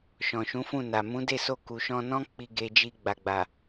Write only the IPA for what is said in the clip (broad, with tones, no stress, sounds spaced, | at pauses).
ʃ ɔ̃˨ ʃ ũ˨˦ f ũ˦˨ n a˨ m ũ˨˦ d e˦˨ s o˧ k u˨ ʃ ɔ̃˧ n ɔ̃˦ k͡p i˧ ɡ e˧ d͡ʒ i˧ ɡ͡b a˨ ɡ͡b a˨